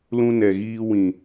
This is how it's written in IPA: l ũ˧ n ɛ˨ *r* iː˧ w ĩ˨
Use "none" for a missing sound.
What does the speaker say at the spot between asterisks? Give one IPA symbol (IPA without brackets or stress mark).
ɣ